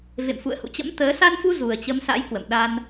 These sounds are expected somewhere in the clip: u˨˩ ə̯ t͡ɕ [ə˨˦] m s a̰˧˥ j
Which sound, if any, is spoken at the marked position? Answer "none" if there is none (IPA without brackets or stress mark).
ə˨˦